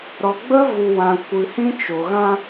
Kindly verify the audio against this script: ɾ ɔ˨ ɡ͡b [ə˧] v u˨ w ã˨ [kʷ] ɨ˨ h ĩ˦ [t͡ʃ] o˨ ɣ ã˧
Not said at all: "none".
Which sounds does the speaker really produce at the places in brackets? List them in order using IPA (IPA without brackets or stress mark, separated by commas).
ə˦, kʷ, t͡ʃ